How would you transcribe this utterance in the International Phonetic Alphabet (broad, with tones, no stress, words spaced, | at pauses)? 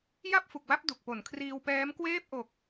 ja˥˩p̚fu˨˩k̚wa˦˥p̚ du˨˩k̚po˩˦nkʰriː˧wpɛː˦˥m kweː˥˩p̚ ʔo˨˩k̚